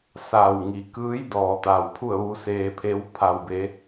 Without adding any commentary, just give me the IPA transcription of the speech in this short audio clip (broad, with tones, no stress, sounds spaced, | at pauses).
s aː˧˩ w ŋ i˩˧ k ɯː˧˥ j d ɔː˩ t̪ a˩ w pʰ u˥˨ ə̯ ʋ u˧˥ s eː˧ pʰ e˧˥ w pʰ a˩ w b e˩˧